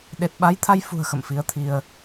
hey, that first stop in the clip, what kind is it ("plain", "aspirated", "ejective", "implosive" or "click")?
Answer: implosive